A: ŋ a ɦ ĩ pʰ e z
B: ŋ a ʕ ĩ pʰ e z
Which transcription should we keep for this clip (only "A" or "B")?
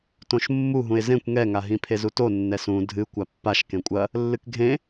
A